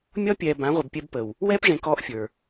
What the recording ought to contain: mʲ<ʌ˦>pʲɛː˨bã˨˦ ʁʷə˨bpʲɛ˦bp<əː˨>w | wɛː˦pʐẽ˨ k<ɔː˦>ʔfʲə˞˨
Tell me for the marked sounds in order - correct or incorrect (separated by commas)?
incorrect, incorrect, correct